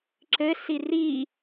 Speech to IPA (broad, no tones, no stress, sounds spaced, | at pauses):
ǁ ɘ s i r i